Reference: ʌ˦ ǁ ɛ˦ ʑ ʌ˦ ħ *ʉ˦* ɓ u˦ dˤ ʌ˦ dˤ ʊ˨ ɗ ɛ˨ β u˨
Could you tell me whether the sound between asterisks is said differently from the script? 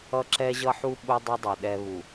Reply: yes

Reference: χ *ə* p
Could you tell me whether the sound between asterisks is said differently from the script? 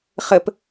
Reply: no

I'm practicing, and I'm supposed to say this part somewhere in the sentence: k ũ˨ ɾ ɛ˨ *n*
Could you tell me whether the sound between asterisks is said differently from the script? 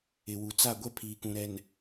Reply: no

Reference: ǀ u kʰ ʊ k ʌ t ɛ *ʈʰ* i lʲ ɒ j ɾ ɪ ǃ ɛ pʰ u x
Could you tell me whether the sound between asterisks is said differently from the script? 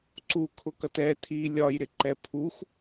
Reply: yes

